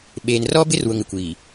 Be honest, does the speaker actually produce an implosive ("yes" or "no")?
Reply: yes